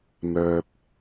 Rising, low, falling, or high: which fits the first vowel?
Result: low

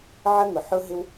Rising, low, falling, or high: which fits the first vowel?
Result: high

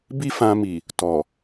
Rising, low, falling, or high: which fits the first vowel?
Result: high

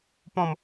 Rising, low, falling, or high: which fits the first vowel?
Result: falling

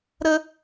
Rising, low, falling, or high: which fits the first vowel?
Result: high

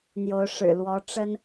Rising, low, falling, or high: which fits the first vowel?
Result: rising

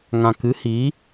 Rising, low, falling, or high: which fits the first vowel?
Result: low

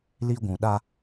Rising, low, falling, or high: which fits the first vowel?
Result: high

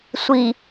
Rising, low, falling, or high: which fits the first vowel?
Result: low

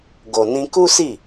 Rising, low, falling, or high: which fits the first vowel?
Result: low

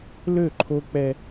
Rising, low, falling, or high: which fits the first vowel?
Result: falling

